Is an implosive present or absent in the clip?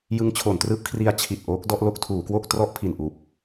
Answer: absent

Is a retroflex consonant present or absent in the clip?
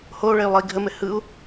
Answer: present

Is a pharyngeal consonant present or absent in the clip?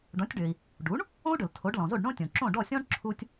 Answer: absent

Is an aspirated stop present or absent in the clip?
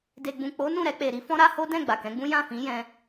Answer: absent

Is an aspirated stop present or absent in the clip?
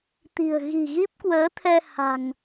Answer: present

